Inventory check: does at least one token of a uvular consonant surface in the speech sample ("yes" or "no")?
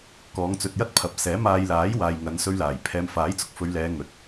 no